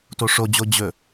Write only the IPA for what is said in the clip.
toʂod͡ʑo d͡ʑɵ

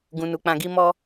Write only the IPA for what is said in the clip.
ɡũ˨nu˨k͡pã˨ɡi˧ mɔ˧

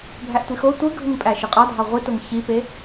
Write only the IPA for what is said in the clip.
bʱæʔtʷixo tʷɯɡʱɯŋpʼæ ʃɯqʼɑdʱɑ ʁʷitoŋ çipe

